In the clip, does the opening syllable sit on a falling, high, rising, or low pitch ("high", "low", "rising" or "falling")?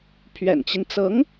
low